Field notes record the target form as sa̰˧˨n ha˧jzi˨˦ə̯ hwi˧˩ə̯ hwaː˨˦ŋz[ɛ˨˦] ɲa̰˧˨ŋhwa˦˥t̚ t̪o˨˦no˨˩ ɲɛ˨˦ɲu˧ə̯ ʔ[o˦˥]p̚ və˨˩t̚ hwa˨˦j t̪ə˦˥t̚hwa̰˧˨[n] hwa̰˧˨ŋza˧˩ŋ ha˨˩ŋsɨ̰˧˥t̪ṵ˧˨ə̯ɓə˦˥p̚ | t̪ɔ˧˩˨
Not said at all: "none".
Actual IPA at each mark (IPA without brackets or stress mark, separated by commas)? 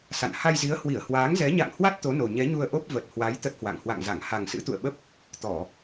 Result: ɛ˨˦, o˦˥, ŋ